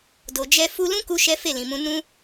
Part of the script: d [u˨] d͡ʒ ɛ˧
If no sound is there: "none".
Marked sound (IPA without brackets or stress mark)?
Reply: o˨